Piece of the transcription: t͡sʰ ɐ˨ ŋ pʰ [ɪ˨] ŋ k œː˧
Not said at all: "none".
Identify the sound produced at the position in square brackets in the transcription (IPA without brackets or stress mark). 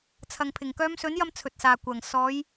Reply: ɪ˨˩